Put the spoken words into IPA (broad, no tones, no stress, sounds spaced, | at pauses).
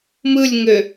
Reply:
m ɯ lʲ ŋ ø